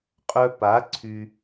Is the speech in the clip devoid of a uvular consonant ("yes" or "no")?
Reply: no